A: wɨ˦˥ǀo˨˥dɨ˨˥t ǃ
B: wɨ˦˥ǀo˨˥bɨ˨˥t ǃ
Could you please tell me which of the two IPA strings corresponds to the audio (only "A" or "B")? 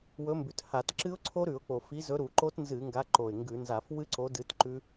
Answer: A